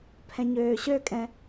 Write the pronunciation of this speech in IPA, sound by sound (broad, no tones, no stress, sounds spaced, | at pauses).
pʰ ɛ̃ ɲ øː ɕ ø kʼ ɛ̃